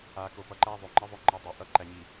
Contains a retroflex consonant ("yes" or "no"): no